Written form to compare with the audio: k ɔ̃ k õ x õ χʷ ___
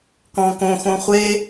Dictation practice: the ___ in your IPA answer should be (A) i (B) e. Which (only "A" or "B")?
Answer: B